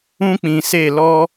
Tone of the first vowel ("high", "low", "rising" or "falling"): high